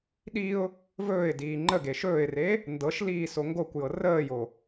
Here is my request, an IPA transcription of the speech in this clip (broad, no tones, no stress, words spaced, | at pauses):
ɗiʊ̯ | vɵːɪ̯diː ŋ͡ǃəɡe ʃɵːɪ̯re | ndɤʃliː soŋɡokʷjɤ rəːjo